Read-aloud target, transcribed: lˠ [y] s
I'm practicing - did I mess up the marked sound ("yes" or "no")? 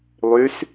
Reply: no